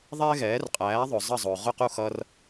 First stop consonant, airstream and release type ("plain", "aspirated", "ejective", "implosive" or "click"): ejective